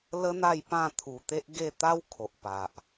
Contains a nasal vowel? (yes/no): yes